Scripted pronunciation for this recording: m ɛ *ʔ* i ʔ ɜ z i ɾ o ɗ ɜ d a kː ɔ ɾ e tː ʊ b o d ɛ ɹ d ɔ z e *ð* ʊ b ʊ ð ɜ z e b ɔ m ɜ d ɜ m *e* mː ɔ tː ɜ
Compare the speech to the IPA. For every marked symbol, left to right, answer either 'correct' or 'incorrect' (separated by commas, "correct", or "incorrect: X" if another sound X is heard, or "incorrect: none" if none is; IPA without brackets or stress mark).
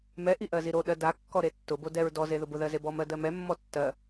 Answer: correct, correct, incorrect: ɛ